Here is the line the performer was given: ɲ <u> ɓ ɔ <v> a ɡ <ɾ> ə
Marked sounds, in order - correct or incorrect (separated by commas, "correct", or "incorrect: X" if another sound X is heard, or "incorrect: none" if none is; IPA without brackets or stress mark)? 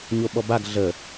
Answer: incorrect: o, incorrect: b, incorrect: ɮ